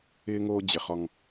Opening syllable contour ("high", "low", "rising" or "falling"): high